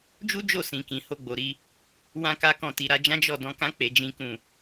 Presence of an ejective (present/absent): absent